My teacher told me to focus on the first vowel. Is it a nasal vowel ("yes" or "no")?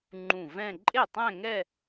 yes